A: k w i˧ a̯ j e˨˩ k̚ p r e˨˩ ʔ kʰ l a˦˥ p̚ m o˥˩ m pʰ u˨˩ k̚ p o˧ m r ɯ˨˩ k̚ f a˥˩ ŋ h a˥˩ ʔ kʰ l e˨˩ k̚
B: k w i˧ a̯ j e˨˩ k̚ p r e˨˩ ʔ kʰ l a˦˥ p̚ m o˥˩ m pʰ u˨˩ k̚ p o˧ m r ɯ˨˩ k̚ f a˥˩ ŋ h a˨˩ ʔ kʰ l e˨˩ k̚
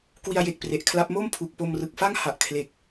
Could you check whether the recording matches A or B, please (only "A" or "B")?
B